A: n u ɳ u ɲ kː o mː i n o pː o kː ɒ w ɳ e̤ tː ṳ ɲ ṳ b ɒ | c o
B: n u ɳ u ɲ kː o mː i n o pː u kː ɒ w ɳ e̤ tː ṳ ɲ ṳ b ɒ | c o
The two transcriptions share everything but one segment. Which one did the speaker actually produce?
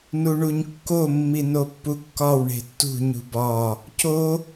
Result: B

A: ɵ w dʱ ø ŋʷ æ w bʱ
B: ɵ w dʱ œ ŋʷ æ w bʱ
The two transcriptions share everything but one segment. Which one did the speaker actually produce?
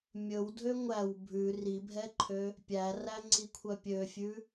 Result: A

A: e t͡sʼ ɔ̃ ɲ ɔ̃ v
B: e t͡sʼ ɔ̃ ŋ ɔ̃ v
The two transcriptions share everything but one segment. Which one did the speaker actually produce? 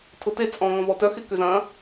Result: B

